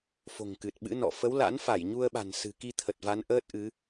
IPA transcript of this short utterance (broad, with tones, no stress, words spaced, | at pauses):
fo̤˨˩ŋkɨ˨˩t̚ɓɨ̰˧˥nɔ̰˧˨ fə˨˦wla̰˧˥nfa˧˩j ɲu˧ə̯ɓa̤˨˩n sɨ̤˨˩ki˧t̪ʰə˨˩t̚ va˨˦nʔəː˦˥t̚ʔɨ˨˦